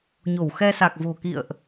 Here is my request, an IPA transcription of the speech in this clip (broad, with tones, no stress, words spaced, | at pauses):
ɲo˧˩wxɛ˧sa˨˩k̚vo̤˨˩ kḭ˧˨ə̯ʔ